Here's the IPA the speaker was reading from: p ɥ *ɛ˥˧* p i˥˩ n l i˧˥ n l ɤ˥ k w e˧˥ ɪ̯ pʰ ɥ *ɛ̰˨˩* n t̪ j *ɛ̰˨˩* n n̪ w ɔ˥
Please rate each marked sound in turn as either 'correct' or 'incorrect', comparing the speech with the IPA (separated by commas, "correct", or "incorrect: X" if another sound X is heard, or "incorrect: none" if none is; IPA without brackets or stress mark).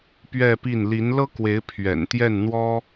correct, correct, incorrect: ɛ˥˩